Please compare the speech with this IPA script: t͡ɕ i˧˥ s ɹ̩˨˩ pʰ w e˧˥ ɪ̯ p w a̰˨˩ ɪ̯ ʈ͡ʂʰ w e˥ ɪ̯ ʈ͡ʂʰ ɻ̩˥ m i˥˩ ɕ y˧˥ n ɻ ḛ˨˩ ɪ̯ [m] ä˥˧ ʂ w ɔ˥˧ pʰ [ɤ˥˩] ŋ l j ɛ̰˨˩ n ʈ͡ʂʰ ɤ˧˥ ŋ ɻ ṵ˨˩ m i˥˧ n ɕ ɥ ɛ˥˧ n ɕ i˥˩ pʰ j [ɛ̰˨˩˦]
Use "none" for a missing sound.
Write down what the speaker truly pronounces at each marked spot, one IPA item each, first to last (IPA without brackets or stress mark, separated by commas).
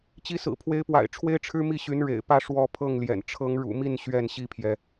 p, ɤ˥˩, ɛ˩